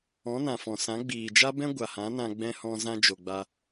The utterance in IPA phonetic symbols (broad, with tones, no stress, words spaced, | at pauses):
ɔ̃˨˦nã˨fɔ̃˨sã˨˦ ɡ͡biː˨d͡ʒa˦ bɛ̃˦ ɡʷa˨hã˨˦nã˧ ɡ͡bɛ̃˧hɔ̃˧zã˧ d͡ʒo˨ɡ͡ba˧